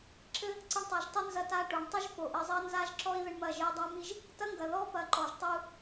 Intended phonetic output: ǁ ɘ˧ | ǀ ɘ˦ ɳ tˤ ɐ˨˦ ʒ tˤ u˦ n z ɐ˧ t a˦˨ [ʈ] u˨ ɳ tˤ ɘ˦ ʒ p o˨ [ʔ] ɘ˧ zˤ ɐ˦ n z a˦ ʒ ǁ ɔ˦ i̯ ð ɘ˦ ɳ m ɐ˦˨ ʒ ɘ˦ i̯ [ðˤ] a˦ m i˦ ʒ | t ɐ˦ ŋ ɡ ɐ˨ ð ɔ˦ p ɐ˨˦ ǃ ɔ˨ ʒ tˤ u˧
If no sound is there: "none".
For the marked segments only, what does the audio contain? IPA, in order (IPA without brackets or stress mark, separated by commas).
ʈ, ʔ, dˤ